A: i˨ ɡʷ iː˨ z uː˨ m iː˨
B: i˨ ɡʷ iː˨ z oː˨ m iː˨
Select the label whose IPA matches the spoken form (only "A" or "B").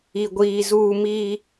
A